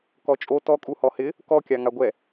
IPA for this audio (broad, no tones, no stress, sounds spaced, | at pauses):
k ɔ t͡ʃʼ o t ɔ kʼ u h ɔ h ɪ | k ɔ kʲ a ŋ a ɡʷ ɛ